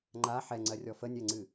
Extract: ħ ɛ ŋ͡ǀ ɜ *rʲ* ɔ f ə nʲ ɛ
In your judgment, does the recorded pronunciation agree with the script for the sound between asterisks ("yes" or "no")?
yes